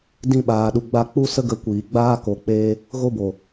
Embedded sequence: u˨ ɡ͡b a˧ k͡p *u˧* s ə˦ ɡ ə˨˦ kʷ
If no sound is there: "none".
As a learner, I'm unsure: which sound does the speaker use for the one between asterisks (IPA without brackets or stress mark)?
u˦